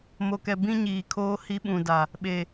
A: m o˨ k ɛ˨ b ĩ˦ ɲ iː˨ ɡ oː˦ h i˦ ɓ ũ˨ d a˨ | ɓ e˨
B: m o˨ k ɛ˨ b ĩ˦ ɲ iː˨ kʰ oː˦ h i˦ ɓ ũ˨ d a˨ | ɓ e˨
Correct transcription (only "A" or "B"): B